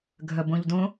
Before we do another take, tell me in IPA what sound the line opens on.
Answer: ɡʱ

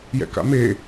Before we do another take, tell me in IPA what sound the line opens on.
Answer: j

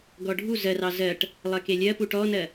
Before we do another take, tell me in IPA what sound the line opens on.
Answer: ɡ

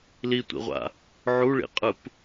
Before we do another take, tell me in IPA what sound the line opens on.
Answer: l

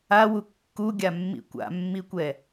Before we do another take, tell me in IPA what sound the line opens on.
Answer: a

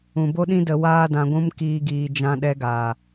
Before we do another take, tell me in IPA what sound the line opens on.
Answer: ũ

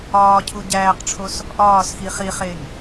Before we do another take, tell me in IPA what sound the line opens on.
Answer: ɒː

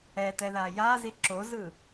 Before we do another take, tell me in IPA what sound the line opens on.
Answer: ɛ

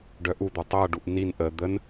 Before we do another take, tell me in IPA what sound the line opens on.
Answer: ɖ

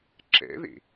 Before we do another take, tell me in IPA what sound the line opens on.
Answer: ǁ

